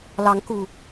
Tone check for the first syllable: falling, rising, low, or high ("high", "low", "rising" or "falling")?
rising